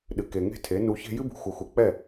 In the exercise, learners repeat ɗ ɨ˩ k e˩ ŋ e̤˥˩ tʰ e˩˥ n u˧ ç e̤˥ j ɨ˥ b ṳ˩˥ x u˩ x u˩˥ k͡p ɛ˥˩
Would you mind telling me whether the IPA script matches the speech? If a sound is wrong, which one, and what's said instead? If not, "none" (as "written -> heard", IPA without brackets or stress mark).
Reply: none